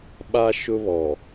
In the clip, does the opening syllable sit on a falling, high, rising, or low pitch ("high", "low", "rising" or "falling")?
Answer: high